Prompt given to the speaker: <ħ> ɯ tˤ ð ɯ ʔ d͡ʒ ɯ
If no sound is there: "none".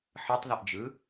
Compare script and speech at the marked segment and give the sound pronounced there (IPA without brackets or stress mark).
ħ